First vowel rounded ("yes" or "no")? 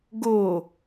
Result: yes